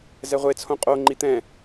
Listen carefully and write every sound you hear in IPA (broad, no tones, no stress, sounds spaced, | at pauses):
z ɛ ʁʷ e t͡sʰ õ qʼ o ŋ͡ǃ i t̪ ɛ̃